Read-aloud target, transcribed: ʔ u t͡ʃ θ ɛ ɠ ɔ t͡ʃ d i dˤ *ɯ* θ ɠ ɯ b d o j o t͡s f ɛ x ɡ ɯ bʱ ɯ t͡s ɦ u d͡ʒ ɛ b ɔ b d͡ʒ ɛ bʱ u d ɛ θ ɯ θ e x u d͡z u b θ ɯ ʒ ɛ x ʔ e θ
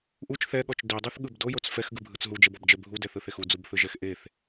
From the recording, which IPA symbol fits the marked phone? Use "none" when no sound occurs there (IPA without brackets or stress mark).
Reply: ɯ